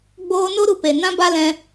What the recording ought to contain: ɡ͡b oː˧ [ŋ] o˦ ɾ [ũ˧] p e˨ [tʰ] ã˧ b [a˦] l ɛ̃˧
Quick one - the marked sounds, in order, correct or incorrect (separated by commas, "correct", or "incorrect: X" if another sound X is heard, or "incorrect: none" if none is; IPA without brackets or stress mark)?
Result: incorrect: n, incorrect: u˧, incorrect: n, correct